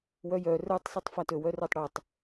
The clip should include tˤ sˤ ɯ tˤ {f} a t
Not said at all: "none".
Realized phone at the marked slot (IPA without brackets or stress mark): f